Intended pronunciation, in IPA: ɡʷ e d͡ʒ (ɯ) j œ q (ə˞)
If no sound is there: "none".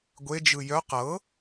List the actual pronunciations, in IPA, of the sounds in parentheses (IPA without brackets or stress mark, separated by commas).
ɯ, ɤ